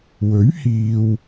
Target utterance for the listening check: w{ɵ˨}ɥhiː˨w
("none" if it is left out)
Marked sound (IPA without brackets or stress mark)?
ɵ˨˥